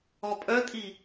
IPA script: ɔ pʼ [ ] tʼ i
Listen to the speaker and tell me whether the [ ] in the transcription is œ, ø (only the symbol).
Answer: œ